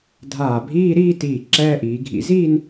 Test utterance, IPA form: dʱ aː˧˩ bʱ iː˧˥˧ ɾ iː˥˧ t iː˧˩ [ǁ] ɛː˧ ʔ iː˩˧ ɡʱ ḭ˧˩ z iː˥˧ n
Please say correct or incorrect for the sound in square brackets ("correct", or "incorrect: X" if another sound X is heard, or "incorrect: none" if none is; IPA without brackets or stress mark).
correct